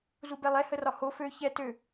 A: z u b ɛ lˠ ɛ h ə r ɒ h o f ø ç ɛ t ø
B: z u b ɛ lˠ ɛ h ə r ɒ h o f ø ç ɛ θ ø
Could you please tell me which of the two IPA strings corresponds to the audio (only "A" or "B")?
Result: A